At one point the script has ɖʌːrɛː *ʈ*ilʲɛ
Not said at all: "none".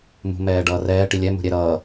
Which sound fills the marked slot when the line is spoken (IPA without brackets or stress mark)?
ʈ